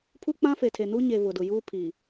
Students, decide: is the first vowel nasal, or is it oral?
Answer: oral